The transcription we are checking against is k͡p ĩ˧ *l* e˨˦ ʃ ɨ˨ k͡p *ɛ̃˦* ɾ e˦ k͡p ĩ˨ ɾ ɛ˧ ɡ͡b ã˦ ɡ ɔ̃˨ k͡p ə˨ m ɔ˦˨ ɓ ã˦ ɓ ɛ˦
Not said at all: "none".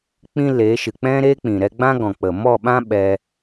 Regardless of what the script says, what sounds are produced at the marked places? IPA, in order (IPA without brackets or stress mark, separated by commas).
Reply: l, ɛ̃˦